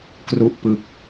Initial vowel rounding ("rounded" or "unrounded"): rounded